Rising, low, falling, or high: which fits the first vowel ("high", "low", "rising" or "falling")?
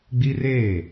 high